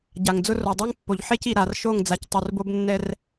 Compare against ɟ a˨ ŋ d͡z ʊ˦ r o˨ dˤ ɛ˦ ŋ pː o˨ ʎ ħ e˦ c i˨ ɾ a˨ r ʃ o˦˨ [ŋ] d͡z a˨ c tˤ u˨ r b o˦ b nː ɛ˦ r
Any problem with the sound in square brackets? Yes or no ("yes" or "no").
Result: no